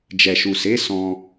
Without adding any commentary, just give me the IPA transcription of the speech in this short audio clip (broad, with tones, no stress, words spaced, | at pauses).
d͡ʒɛ˨ʃu˨se˨˦ sɔ̃˧